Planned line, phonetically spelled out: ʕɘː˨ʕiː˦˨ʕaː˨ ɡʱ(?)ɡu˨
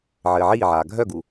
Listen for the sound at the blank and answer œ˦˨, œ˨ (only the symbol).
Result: œ˦˨